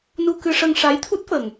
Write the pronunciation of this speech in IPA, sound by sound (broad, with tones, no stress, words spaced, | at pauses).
nu˧kɨ˧ʂə˧ŋ ʂa˧˥jt̪ʰu˦˥t̚fə˨˩ŋ